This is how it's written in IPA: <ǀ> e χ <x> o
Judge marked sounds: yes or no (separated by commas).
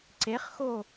yes, yes